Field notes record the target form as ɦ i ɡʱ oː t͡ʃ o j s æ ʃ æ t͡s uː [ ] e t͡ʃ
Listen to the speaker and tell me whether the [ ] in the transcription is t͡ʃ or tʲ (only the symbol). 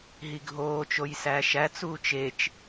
t͡ʃ